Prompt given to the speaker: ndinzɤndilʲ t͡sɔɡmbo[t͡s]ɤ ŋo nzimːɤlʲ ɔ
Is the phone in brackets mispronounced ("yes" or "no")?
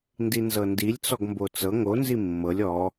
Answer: no